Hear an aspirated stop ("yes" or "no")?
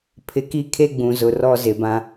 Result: yes